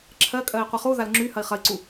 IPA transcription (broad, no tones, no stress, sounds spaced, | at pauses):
ǁʰ ɜ kʼ ɜ i̯ qʷ i χ u ð a l ŋ͡ǁ y h ɐ i̯ χ ɐ i̯ ǀ u